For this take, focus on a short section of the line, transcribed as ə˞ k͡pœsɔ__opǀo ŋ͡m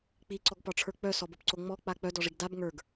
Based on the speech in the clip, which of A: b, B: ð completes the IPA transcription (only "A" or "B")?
A